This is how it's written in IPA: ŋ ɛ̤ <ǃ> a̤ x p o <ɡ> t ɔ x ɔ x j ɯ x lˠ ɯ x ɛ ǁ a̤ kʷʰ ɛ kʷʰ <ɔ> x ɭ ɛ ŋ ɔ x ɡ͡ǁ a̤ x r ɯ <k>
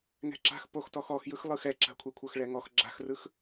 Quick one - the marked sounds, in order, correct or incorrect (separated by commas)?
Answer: incorrect, incorrect, incorrect, incorrect